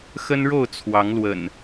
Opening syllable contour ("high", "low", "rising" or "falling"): high